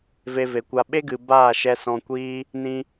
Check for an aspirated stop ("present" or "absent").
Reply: absent